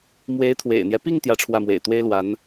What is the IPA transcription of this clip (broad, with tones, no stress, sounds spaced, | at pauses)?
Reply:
m w e˧˥ ɪ̯ t̪ʰ w ḛ˨˩ ɪ̯ n̪ j ɛ˦ p i˥˧ ŋ t̪ j ä˥˧ ʈ͡ʂʰ w ä˥˩ m w ḛ˨˩ ɪ̯ t̪ w e˥ ɪ̯ l w a˧˥ n